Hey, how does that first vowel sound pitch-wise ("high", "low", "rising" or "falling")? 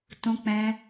high